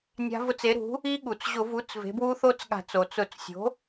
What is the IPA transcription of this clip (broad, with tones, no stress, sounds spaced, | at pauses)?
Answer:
nʲ a̤˦˥ v ʊ˦˥ t͡s e˩˥ ɾ ṳ˩˥ | i˦˥ ɠ u˩ t͡s ʑ ʊ˧˩˧ v u˩˥ t͡s v e̤˩˥ b w u˦˥ θ o˦˥ t͡s ɠ a̤˧˩˧ t͡s o˩ t͡s ʊ˧˩˧ t͡s sʲ o̤˩˥